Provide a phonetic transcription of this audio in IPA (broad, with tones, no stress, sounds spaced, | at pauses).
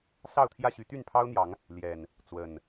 s ɑ˥˨ ʊ̯ t̪ʰ j ä˥˨ ɕ y˨˦ t̪ y˥˨ n pʰ ɑ˦ ʊ̯ n̪ j ɑ˨˦ ŋ | l j ɛ˨˩ n | t͡s w ə˨˩ n